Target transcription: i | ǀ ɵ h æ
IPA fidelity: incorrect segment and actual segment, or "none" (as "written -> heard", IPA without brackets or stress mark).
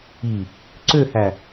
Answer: ɵ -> ø